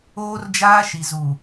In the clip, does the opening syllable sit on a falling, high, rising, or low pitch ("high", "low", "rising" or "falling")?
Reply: high